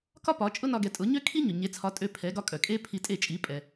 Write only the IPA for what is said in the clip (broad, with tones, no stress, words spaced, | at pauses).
kɒ˥pɒ˩˥ t͡ʃʼʊ˥nɒ˧ɡɛ˩˥ tʼʊ˩˥ɲø˥ kʰi˥ ɲʊ˩ɲe˩˥t͡sʰɒ˩˥ tʼø˧ pʰɛ˩˥ɡɒ˧kʼœ˩ kʼe˥pʰi˧tʼe˥˩ t͡ʃʼi˩˥ pʼɛ˩